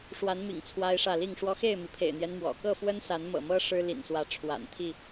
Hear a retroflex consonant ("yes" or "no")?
yes